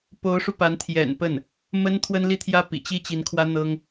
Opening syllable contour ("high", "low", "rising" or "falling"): rising